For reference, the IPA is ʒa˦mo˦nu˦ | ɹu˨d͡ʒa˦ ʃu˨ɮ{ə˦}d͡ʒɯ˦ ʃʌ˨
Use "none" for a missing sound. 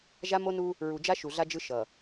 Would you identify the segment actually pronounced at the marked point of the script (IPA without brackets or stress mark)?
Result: a˦